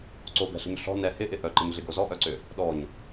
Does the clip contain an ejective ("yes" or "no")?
no